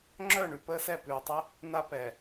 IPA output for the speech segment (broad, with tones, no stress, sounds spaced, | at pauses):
ŋ͡ǁ œ˦˨ ɳ ʉ˨ p əː˦ s ɛ˦˨ p ʉː˨ tˤ ɛ˦ | n a˦ p ɛ˨